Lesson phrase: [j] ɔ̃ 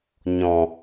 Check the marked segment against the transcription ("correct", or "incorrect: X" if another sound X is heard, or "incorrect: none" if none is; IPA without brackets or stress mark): incorrect: ɲ